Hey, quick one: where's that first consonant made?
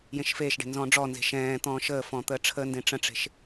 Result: palate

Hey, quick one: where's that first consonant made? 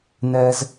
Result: tongue tip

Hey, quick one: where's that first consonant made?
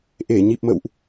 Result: throat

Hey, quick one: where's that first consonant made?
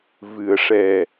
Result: lips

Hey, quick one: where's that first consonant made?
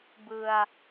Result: lips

